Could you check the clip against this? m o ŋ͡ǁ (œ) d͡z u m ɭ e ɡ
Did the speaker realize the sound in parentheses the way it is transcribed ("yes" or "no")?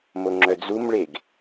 yes